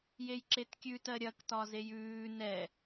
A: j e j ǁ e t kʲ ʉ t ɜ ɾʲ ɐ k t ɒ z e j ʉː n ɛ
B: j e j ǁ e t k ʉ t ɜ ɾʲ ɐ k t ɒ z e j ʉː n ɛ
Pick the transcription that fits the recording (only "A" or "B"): A